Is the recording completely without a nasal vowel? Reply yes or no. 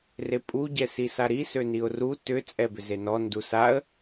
yes